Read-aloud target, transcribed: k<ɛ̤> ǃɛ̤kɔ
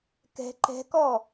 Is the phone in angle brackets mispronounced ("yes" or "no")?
no